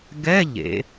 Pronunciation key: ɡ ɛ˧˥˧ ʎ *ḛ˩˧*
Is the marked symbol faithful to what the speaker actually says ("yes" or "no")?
yes